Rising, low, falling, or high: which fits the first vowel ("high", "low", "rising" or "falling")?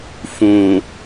low